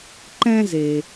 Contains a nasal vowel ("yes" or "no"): yes